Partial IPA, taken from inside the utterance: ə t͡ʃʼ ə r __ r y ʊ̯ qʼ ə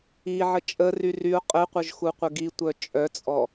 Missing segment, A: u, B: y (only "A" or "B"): B